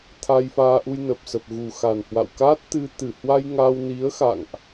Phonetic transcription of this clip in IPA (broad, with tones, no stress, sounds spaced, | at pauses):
t̪ʰ a˧ j f aː˧ ʔ u˧ j n ə˨˩ p̚ s ə˨˩ p̚ ɣ u˨˩ x a˨˩ n h w a̰˧˨ w k aː˦˥ t̚ t̪ ɨ˧ t̪ ɨ˧˩ h w a˧ j ŋ aː˧ w n i˨˦ ə̯ x a̰˧˨ ŋ ʔ